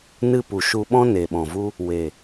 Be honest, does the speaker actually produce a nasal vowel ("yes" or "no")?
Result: yes